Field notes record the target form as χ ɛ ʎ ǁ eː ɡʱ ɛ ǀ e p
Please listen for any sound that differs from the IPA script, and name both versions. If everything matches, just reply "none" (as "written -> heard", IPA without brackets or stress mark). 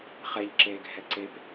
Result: none